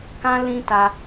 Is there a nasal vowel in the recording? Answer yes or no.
yes